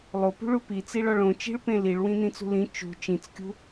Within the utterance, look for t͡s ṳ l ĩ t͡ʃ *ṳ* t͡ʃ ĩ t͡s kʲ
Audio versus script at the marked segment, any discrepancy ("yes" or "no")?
no